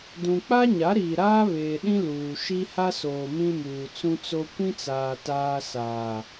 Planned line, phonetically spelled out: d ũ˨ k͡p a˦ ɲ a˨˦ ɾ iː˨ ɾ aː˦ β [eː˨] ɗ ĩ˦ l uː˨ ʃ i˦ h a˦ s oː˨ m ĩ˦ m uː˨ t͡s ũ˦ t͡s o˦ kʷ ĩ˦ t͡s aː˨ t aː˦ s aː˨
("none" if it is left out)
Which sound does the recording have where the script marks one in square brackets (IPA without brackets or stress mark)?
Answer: eː˨